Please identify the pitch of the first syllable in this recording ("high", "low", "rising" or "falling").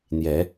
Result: rising